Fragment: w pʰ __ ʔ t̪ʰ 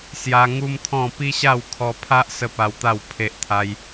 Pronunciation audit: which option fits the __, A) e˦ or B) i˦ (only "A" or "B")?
A